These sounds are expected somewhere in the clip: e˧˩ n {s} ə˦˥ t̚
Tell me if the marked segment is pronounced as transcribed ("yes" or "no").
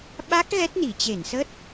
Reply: yes